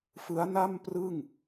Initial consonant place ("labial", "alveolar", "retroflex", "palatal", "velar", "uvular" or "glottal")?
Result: labial